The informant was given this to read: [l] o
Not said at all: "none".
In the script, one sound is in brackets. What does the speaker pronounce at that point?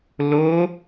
l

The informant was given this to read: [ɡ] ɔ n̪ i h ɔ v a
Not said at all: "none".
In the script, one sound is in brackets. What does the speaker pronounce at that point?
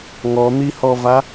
ŋ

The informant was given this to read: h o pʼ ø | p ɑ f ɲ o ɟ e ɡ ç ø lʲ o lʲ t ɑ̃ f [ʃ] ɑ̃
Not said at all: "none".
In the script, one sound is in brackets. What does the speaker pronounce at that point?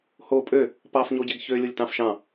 ʃ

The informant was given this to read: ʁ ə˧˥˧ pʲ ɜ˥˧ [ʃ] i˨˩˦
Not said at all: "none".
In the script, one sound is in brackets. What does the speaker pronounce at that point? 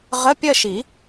ʃ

